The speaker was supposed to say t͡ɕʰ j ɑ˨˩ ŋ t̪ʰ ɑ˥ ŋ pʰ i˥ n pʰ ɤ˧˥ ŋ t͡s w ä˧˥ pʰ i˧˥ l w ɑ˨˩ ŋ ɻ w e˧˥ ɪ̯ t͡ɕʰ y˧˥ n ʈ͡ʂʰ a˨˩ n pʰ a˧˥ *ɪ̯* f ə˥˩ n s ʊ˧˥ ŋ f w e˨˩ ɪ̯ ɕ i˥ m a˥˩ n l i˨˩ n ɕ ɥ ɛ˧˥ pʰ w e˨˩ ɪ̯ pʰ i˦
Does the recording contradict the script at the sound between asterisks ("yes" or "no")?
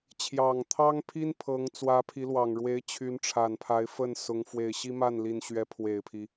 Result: no